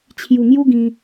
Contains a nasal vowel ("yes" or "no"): yes